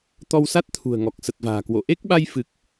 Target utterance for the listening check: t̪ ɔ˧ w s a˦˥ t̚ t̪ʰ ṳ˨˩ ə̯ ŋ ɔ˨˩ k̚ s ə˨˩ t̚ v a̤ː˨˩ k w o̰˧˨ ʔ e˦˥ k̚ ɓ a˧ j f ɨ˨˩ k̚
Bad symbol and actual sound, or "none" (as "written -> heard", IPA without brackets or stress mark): none